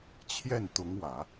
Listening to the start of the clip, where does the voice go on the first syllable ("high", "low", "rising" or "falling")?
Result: falling